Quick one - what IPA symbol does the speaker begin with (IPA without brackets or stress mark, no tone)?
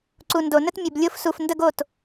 ǀ